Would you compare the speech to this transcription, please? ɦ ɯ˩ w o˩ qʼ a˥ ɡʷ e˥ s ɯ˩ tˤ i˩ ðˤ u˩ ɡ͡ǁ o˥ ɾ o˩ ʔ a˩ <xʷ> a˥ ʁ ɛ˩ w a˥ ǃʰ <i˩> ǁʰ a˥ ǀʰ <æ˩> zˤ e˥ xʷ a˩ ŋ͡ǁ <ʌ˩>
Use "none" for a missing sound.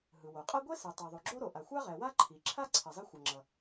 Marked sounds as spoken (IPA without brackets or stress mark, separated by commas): xʷ, i˩, ɛ˩, ʌ˩